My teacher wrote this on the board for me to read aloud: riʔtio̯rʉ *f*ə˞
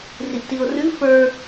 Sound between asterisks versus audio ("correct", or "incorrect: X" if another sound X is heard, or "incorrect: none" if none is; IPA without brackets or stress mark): correct